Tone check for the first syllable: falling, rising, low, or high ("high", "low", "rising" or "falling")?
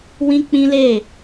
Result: high